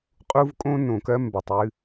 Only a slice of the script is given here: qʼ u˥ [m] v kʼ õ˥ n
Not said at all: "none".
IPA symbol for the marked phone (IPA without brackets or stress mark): none